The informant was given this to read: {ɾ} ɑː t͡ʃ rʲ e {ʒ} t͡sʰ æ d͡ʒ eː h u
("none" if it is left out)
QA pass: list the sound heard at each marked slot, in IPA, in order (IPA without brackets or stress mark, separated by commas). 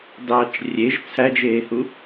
d, ʒ